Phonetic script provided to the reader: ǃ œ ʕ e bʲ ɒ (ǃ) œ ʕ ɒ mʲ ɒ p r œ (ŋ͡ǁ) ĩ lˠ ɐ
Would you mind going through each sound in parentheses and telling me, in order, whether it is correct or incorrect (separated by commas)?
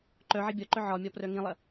correct, incorrect